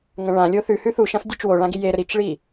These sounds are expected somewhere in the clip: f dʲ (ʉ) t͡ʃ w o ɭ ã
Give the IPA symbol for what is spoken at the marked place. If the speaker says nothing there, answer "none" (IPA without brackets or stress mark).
ʉ